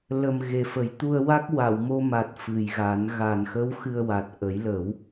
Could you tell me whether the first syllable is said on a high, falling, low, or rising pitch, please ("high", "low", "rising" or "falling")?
low